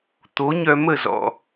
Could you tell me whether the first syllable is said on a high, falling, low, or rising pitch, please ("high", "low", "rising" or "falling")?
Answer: rising